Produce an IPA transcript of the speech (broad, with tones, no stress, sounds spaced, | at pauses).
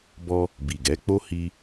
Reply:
b ɔ˧ | b i˨ ɡ ɛ˨˦ k͡p o˦ h i˧